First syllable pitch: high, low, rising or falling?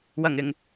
low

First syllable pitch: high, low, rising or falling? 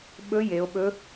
rising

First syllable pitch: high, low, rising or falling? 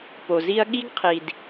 low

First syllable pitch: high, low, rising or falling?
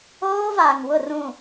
high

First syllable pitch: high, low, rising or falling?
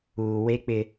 low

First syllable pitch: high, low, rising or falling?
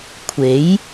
rising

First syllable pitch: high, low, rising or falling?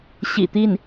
low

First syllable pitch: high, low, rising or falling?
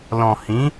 low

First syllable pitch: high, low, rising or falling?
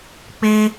high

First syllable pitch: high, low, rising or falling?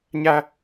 high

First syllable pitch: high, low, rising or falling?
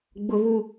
high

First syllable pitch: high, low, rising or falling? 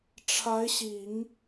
rising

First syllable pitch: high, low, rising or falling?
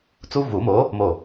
high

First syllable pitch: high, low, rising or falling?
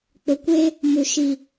low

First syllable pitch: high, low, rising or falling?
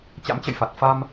rising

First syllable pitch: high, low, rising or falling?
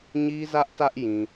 high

